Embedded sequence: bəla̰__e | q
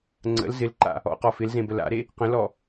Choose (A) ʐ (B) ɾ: B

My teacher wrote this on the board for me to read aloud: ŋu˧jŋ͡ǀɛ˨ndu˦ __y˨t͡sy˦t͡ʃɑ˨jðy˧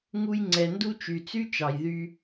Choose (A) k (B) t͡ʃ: B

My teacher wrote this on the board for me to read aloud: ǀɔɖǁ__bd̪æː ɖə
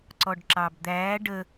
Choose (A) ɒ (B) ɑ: B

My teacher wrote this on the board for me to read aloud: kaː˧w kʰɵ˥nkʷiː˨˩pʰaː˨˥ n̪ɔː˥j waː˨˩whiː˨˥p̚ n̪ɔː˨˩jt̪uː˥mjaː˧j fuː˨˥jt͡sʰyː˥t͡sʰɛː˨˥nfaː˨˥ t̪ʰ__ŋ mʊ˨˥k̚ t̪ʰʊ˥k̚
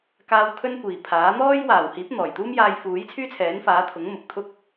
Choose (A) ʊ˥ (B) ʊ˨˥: B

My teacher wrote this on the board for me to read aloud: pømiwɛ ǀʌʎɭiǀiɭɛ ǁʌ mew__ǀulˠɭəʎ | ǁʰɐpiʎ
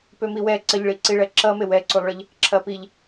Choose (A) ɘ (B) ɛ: B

